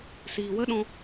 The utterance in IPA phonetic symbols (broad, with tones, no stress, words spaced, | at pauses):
siː˨wə˦ɗɔ̃˧